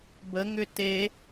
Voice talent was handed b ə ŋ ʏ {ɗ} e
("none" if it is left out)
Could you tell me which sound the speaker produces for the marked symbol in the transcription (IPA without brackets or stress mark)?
t